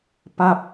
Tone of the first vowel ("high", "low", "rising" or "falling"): falling